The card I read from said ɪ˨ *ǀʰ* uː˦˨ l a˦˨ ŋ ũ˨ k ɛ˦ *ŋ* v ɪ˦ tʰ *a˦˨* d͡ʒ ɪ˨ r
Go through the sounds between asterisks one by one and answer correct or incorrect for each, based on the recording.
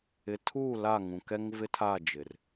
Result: incorrect, correct, correct

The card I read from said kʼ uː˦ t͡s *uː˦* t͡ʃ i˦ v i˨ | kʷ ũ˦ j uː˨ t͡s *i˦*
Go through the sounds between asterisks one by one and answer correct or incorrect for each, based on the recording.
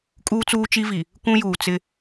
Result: correct, incorrect

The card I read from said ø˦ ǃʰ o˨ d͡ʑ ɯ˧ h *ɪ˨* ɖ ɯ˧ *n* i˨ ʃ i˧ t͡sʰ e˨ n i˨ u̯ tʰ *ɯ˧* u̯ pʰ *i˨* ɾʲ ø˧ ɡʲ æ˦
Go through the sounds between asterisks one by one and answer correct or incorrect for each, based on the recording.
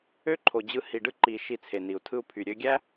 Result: incorrect, incorrect, correct, incorrect

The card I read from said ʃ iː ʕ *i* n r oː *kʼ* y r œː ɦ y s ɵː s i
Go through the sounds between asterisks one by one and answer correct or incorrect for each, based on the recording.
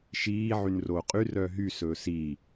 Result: incorrect, incorrect

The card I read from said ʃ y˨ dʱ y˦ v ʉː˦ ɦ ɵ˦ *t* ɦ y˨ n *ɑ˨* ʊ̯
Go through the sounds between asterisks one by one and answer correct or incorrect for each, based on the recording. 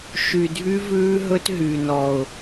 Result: correct, incorrect

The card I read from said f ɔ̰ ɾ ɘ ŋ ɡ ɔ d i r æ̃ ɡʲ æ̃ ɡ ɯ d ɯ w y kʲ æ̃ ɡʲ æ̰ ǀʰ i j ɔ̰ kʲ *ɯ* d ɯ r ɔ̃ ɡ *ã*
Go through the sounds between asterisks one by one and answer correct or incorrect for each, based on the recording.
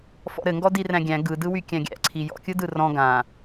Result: correct, correct

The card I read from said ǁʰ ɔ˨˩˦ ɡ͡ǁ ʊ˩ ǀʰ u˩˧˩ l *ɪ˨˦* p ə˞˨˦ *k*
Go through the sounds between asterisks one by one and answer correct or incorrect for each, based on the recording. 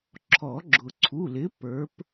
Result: correct, incorrect

